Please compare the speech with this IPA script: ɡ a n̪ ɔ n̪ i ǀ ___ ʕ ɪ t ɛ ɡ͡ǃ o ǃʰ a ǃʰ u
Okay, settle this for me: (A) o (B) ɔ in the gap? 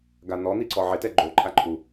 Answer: B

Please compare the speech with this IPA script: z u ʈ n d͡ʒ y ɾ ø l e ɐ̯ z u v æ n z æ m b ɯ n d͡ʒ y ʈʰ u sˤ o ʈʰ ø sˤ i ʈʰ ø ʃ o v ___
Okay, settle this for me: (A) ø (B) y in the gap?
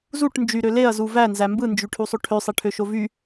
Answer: B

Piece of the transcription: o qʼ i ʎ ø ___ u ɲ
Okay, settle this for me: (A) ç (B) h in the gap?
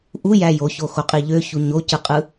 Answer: A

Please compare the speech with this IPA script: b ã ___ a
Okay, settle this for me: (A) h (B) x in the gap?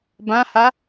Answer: A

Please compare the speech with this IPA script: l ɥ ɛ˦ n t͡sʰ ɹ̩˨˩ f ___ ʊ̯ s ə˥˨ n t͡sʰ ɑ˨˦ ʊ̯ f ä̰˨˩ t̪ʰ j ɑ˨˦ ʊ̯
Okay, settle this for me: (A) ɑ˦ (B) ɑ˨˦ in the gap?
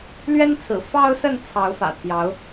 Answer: A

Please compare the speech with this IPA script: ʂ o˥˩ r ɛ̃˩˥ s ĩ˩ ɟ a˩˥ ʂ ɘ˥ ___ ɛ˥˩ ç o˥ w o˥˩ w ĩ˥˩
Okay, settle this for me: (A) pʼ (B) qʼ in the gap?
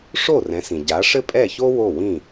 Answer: A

